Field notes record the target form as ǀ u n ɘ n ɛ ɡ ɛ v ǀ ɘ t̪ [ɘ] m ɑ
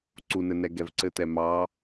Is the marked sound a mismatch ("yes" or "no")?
yes